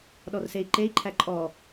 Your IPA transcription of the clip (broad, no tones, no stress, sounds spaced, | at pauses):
ɗ ɔ r s e i̯ ǃ e i̯ ǃʰ æ ǃʼ ɔ